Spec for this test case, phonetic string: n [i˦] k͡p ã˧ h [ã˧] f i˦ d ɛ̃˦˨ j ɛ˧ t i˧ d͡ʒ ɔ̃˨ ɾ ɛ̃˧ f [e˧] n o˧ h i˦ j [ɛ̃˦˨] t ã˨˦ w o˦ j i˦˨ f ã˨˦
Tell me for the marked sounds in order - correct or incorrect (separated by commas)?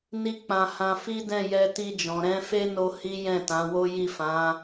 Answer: correct, correct, incorrect, correct